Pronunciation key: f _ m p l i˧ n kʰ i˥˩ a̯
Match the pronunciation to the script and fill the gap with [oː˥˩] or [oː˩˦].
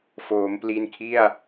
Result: oː˩˦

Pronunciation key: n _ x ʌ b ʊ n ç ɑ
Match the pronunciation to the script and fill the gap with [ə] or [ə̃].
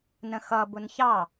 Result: ə̃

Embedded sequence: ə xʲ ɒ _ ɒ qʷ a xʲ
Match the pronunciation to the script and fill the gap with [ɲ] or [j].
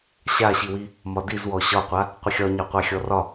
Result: ɲ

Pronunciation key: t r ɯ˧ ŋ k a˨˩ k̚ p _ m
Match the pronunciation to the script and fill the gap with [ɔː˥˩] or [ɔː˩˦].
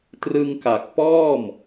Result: ɔː˥˩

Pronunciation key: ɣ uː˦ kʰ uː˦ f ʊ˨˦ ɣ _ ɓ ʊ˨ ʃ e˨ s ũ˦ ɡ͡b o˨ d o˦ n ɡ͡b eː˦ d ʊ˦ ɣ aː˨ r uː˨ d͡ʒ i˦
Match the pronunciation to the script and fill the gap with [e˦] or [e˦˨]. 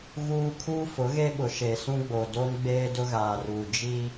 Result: e˦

